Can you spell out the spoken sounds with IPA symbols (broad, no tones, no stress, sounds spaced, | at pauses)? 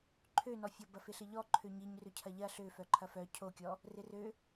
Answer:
ǃʰ ø n ɔ fʲ ɔ b ɐ f ɪ ɬ ɪ ʎ ɔ ǃʰ ø ɲ i ɲ r ʏ cʰ ɐ ʎ ɐ ɬ ø f œ ǃʰ ɐ f œ cʰ o kʲ ɔ | r ɪ r ø